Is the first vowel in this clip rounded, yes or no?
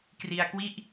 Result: no